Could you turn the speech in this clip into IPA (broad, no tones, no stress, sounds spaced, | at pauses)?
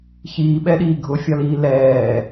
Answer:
ç iː ɓ ɛ ɗ iː ɡʱ ʊ fʲ ɒ l iː l ɛː